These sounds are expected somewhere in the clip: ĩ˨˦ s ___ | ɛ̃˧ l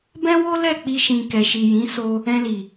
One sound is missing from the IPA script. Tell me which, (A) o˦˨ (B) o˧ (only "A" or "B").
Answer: B